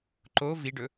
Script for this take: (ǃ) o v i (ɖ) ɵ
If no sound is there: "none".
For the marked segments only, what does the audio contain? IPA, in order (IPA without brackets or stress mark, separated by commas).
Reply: ǃ, ɖ